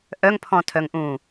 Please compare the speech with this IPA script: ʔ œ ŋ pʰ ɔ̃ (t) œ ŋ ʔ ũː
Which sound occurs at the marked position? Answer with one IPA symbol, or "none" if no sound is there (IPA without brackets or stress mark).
tʰ